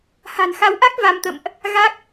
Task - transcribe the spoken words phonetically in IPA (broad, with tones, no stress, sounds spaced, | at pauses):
h a̤˨˩ n x a˨˦ w ʔ a˦˥ k̚ v a˧ m t̪ ə̰˧˨ m ʔ | ɣ a˦˥ k̚